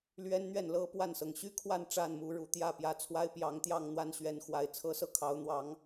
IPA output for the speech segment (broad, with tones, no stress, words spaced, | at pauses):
lɥɛ˦nn̪ɥɛ˥˨nlɤ˦ pwa˥˨nsɤ˩ŋ ɕy˦kʰwa˥˨n ʈ͡ʂa˥˨nmu˨˦ɻu˨˩t̪jä˥˨ pjä˨˩t͡sʰwa˦ɪ̯pjɑ˨˦ŋt̪jɑ˥˨ŋ n̪wa˥˨nɕɥɛ˨˦nxwa˨˩ɪ̯ t͡sʰɤ˦sɤ˥˨kʰɑ˨˦ʊ̯ n̪wɑ˨˦ŋ